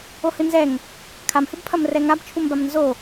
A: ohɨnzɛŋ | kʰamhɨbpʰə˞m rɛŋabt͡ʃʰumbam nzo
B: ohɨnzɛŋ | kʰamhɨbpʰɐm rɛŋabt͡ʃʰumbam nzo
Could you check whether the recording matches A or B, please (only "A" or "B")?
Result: B